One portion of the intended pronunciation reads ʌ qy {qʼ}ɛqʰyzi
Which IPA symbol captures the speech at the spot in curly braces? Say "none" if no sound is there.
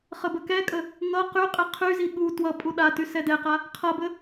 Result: qʼ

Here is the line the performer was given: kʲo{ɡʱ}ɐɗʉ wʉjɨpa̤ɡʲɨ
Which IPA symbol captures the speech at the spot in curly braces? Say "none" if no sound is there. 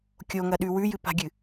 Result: ŋ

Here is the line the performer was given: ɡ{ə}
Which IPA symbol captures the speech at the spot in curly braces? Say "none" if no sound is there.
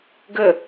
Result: ə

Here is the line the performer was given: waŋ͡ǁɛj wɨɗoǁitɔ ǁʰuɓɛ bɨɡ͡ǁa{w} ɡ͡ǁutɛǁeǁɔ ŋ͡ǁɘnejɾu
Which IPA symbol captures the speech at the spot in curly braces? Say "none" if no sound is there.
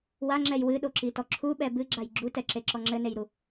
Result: j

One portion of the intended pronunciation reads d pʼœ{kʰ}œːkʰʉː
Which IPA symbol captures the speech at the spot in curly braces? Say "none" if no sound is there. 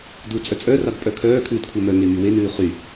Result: kʰ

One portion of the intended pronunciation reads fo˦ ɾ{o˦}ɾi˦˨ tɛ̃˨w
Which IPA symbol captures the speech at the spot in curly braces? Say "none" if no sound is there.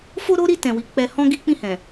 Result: o˦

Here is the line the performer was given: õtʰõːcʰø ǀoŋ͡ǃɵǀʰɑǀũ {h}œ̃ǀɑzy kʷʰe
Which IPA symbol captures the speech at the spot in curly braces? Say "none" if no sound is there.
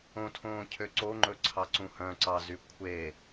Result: h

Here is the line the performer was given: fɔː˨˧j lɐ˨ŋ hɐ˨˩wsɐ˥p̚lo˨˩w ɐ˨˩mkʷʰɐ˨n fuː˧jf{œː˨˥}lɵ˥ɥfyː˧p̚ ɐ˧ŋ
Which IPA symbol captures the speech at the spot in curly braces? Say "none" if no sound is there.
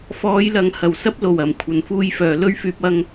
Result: œː˨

